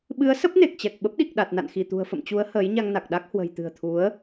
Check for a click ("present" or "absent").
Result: absent